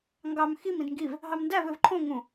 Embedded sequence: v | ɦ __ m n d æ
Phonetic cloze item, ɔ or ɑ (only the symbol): ɑ